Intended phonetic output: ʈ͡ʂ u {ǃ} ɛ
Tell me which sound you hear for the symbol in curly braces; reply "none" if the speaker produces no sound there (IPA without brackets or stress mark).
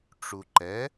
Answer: ǃ